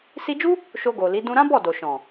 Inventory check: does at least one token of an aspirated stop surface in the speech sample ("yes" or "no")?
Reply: no